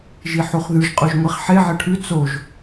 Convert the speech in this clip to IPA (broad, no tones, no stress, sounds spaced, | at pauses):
ʒ i ħ u χ ð ʉ ʒ qʼ ʉ ʒ ŋʷ i χ ħ e ʕ e ʈʰ ʉ t͡s o ʒ